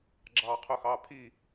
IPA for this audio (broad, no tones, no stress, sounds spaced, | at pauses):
ɡ͡ǁ ɑː qʰ ʊ x ɑː pʰ i